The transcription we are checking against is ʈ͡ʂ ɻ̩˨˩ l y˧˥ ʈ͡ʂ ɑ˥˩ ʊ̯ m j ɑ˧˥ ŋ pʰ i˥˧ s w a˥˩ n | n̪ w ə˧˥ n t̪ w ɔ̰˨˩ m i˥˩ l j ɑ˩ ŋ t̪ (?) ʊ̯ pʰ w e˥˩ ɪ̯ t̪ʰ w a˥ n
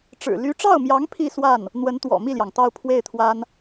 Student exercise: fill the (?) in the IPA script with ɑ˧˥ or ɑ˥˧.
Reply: ɑ˥˧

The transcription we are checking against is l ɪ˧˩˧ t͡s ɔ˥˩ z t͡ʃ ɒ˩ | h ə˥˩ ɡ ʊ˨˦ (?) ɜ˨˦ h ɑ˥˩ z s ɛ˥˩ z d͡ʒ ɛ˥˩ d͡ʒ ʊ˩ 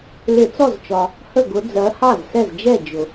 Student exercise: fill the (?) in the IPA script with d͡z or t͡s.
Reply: d͡z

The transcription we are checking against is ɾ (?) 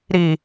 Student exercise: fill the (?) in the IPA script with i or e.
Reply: i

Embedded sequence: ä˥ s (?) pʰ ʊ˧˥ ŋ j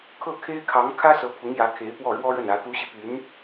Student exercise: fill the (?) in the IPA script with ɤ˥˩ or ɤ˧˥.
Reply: ɤ˧˥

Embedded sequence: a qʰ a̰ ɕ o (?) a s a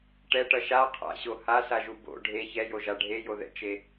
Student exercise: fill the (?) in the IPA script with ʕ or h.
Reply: h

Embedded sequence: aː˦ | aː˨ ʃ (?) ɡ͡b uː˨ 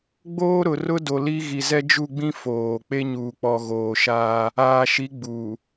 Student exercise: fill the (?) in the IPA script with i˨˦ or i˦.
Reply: i˨˦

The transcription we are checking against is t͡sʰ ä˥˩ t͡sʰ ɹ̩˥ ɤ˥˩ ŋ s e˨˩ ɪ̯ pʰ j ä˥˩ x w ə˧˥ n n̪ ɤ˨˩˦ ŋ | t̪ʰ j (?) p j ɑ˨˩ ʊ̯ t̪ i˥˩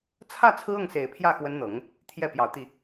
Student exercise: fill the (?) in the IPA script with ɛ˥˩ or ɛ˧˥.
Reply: ɛ˥˩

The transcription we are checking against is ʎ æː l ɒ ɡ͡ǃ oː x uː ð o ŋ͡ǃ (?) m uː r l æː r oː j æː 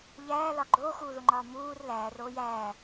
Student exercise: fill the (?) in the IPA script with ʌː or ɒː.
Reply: ɒː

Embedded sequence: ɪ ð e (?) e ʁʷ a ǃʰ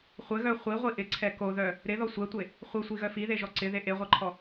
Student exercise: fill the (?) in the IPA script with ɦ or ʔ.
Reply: ʔ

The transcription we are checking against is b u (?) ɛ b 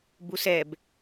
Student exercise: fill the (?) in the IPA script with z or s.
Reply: s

